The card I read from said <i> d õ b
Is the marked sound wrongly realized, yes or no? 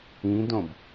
yes